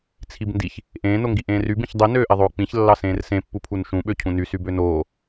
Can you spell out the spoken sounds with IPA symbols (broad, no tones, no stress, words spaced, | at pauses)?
t͡sʰibndiç | ʔẽː noŋɡiʔẽːry bĩçdˤi nøːʔeðˤoːk͡pĩç lːɑsẽːrsẽ pːupʰunʃũ ɓøcʰũny sybønoː